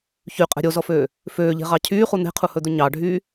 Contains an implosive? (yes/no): no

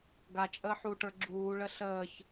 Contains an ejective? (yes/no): yes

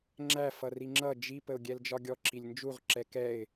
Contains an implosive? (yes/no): no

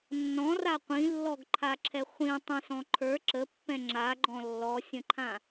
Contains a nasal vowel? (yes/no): yes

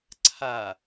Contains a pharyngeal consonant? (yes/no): no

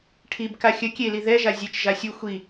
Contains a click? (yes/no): no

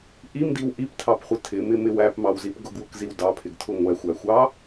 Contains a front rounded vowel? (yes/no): no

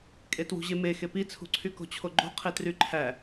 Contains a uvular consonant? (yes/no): yes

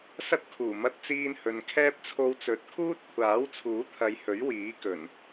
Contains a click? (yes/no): no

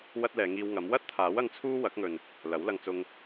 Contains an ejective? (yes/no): no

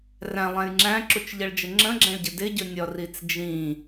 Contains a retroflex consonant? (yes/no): yes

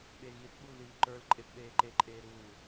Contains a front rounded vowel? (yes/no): no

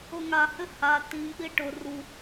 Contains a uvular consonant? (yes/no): no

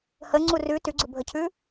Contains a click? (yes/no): yes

